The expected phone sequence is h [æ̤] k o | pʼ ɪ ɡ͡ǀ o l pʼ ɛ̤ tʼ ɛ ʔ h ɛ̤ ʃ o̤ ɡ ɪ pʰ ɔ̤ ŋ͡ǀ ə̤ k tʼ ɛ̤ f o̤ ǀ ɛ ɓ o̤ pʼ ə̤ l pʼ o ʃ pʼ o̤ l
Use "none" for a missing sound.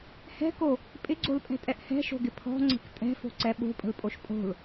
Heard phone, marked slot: ɛ̤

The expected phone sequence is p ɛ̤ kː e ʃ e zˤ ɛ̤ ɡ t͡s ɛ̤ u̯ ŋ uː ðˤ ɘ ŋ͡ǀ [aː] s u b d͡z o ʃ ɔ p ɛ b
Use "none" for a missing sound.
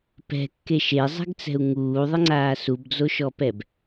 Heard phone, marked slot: aː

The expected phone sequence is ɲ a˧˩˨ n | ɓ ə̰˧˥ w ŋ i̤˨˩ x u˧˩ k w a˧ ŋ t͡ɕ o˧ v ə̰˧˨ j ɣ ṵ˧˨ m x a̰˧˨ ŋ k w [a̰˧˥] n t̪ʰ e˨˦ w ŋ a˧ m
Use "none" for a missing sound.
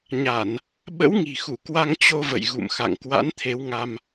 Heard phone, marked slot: a̰˧˥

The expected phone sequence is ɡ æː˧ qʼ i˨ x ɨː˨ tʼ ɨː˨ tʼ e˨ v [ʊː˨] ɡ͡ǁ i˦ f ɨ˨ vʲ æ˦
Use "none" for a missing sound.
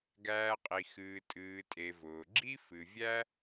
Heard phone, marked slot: ʊː˨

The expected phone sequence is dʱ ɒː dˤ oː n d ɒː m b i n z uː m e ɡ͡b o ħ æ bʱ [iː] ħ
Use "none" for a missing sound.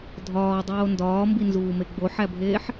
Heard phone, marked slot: eː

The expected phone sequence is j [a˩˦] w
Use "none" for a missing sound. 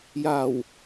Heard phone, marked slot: a˨˩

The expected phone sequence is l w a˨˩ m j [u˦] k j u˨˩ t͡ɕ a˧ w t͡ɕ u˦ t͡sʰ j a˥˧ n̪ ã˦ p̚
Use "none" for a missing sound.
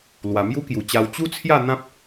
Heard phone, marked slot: u˦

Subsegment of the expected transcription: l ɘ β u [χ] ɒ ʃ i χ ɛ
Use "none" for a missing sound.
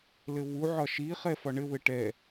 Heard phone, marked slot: ʕ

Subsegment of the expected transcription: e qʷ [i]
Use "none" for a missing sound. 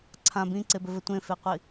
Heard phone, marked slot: i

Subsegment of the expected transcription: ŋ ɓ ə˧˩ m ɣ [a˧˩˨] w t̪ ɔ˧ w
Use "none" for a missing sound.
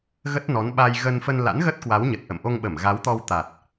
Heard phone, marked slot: a˨˦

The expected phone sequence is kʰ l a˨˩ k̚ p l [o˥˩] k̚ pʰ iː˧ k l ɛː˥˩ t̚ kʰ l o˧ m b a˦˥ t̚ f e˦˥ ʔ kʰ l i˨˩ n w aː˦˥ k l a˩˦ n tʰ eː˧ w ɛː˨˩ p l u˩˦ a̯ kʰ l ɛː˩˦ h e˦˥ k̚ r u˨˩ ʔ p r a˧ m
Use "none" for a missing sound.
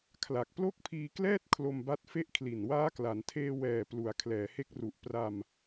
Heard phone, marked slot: o˥˩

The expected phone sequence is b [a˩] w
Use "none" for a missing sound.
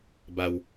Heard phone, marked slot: a˧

